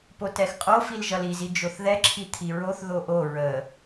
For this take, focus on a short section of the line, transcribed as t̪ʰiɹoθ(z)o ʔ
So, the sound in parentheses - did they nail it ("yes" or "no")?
no